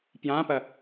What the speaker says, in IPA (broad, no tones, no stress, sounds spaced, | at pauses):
p j ã p ɐ